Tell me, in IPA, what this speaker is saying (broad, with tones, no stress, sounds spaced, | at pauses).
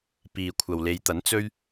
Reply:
p iː˨ kʷʰ ɐ˨ w l e˨˧ j t̪ ɐ˨˥ n t͡s ɵ˥ ɥ